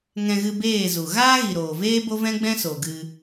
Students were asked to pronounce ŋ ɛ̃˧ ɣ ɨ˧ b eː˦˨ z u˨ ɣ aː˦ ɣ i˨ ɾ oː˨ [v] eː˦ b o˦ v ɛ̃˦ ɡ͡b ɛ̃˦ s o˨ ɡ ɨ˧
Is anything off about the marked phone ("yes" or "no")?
no